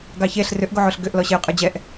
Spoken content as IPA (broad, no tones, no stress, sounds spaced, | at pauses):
ɡ ɑ ç e ɬ r ʏ ʔ ɡ o ʕ o ɬ ɡ ʏ ʔ l ɔ ɕ e ʊ̯ qʼ ə˞ d͡ʑ ɛ ʔ